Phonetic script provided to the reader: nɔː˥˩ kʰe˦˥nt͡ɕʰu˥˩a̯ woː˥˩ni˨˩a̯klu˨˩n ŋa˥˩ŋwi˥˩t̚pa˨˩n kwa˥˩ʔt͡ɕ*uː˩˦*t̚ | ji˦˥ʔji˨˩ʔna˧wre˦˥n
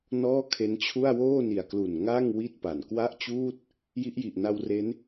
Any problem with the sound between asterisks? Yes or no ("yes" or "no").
yes